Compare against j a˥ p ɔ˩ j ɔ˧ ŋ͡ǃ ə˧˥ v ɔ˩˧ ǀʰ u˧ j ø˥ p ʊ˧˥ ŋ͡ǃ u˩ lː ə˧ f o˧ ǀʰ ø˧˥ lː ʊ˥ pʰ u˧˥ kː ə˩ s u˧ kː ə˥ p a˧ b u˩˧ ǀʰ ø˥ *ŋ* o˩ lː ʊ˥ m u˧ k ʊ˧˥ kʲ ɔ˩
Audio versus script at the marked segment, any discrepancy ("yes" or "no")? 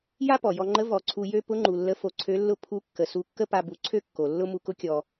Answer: yes